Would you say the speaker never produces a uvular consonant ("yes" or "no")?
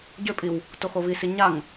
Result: yes